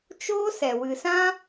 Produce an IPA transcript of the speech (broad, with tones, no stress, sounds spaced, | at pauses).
t͡ʃ oː˦ s ɛ˨ w ɨ˨ s ã˦